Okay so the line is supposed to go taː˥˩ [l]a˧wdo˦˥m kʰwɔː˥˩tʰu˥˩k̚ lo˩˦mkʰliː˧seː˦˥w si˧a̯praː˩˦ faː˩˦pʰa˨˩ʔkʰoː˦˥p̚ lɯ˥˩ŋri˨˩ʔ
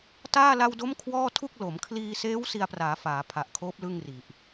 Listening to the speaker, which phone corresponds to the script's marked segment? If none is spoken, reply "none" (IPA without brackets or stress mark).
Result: l